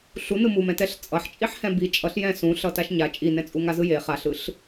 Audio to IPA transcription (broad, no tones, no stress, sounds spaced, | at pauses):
ɬ u n ɯ m u m ɛ̃ t ɛ ɬ t͡sʼ ʌ ħ t͡ʃʼ i ħ h ɛ̃ b i t͡ʃʼ ʌ ɬ j ɛ̃ s ũ ɬ ʌ t a ʃ ɲ a t͡ʃʼ i n ɛ̃ t͡sʼ u ŋ a z ɯ j e χ a ɬ ɯ ɬ